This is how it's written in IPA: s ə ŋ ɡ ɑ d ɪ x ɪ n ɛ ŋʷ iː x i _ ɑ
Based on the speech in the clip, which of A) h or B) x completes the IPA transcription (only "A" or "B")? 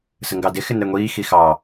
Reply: B